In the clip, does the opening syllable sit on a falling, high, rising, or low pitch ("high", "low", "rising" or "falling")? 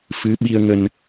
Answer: rising